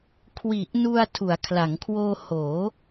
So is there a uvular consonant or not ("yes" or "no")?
no